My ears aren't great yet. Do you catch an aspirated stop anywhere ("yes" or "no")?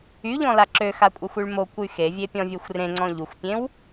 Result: no